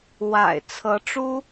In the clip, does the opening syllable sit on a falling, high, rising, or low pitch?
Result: low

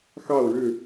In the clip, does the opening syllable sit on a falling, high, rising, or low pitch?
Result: falling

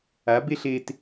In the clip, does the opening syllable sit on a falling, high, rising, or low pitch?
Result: rising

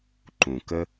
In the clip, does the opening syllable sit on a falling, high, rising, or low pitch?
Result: low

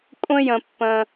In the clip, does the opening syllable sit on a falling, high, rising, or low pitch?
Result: high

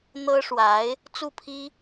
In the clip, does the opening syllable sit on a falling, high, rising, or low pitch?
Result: high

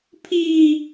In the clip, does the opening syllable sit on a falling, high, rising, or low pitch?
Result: high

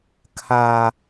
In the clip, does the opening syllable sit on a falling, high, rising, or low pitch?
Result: high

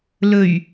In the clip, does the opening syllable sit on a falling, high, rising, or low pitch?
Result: low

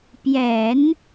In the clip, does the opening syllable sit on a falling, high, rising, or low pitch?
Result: low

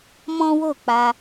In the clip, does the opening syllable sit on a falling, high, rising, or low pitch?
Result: high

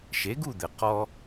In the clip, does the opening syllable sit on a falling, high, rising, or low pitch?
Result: rising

